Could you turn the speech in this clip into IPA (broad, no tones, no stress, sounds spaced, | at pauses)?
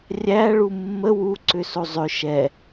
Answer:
rʲ æ ɭ u mː ə w u ǀ ʏ s o zˤ ʏ ʃ ɛ